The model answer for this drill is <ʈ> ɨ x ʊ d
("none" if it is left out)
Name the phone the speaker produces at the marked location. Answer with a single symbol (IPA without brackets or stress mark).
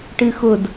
ʈ